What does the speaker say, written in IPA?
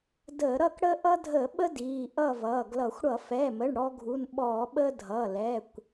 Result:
dəː˧˩˧ɾʌ˥˨k ɽəː˦ʔʌ˦dʱə˧˩˧ɓə˦ diː˩˧˩ʔʌ˥˨vʌː˩˧˩ɡlʌ˧˩˧xʷ ɽʌ˧˩˧fɛ˩˧˩mə˩˧˩ɳ ɽɔ˦ɡʱu˩˧˩nɓɔː˧˩˧ ɓəː˦dʱʌː˩˧˩ lɛ˩˧˩kʷ

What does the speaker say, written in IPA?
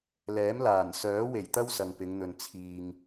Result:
lɛː˨˥mlaː˨˩n sœː˨˥we˨˩jt̪ɐ˥w sɐ˨ŋpɪ˨˧ŋn̪ɵ˨n t͡sʰiː˨ŋ

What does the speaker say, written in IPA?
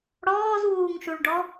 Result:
ɽɔːzwuːŋʃuɭɖɔ

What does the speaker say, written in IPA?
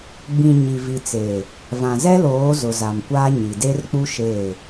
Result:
ɡ͡bĩ˨ ɲi˨ vi˨t͡seː˨ | vã˨zɛ˦loː˨˦ zʊ˨za˨m kʷaː˦ ɲi˨de˦rk͡pu˦ ʃeː˦˨

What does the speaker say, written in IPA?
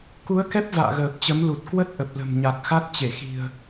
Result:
ku˨˦ə̯kɛ˦˥p̚ va̰ː˧˨ɣəː˨˩p̚t͡ɕə˨˦m lu˨˩t̚ kwə˦˥t̚ʔə˨˩p̚ lə̤˨˩mɲa˨˩k̚ xa˦˥t̚t͡ɕe˧˩xi̤˨˩ə̯

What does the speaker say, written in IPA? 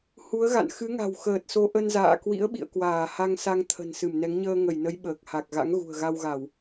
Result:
hu˨˦ə̯ɣa̰˧˨n xɨ˨˦ŋa̤˨˩wxəː˨˩t̚so˨˦ ʔə˧nza̰ː˧˨kwḭ˧˥ə̯ɓḭ˧˨ə̯ kwaː˧˩ha˧ŋsa˧ŋ t̪ʰə̤˨˩nsɨ˧˩m nɛ˨˦ŋ ɲəː˧ŋə˧˩jnə˨˦j ɓəː˨˩k̚ ha˨˩k̚ɣa̰˧˥ŋ ɣṳ˨˩ə̯ ɣa˧wɣa˧˩˨w

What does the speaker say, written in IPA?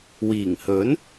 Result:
wiː˨˩ŋhɵ˨˥n

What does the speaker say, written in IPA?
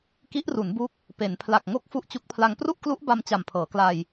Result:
ki˦˥ʔru˩˦nbu˦˥k̚ | pe˩˦n pʰla˨˩k̚ŋo˦˥k̚ fu˦˥ʔt͡ɕu˦˥k̚pʰla˧ŋ pru˥˩ʔklu˦˥ʔ ba˧m t͡ɕa˨˩mpʰɤː˩˦kla˧j

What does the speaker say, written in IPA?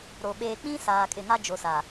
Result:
ɾo˨ ɓeː˨k͡pĩ˦ saː˨kʼɪ˨ŋa˦ d͡ʒo˨ sa˨

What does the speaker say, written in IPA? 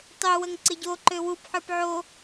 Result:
tˤø wəŋǀɪɟoǃø wupħə˞p ʕo

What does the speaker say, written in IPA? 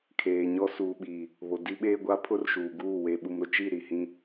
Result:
kʰeː˨ɲɔ˦ suː˨ɓiː˨ | βo˨ di˦ ɓeː˦ɡʷa˦ pʰʊ˦rʃuː˨ɡuː˦˨ we˨ ɓu˨mɾʊ˨t͡ʃi˦˨ ɾi˨hĩ˦

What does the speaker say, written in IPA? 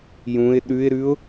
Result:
jũɪ̯ ɗʉɪ̯ɾʉʊ̯

